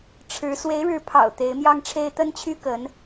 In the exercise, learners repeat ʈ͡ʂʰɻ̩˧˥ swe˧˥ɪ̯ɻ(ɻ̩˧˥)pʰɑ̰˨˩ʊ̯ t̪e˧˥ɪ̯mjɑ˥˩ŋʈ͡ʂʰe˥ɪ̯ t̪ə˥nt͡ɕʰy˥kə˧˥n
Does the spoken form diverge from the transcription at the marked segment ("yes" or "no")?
no